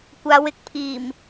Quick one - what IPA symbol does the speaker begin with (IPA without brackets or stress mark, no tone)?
kʷ